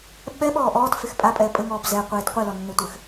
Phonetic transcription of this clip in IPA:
ɓɛɓɔː ʔɔːtfex pʼapʼɛː pʼɘŋɔːb zɛqʷeːt qʷilɔnːetʷɘx

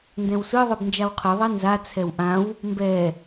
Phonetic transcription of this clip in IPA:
ndɛ̃wsɯ ðˤɯbnd͡ʒawqʰɯ ðˤɛnza t͡sʰɛwʔãw | mbɛ

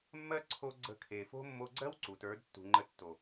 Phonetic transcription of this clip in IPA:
mːɜ˦ǀʰo˧ ɡ͡ǀə̤˧kʰe˨fo̤˦ mːo˧ɡ͡ǀɜ˦w ǀu˨tə˞˨˦d tːṳ˨ŋ͡ǃə˧tːo˨

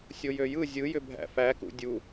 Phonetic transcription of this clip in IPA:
sʲojøjɯ zʲɯ jʏbʱæ̰fækṵ dʲu

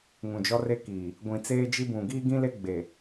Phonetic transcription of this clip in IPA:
ŋũ˨d͡ʒɔ˦re˦kiː˨ | ɡʷĩ˨t͡seː˦d͡ʒi˦bũ˨ ɡiː˦ɡĩ˦le˦ ɡ͡be˨

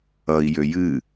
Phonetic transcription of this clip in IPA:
ʌi̯ jøjɨ

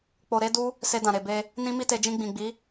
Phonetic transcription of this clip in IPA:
k͡po˧ɾe˦du˦ | se˧dã˨ɾe˨be˧ | nĩ˦mi˦te˧ d͡ʒĩ˧ɡ͡bĩ˨ɡ͡bi˨˦

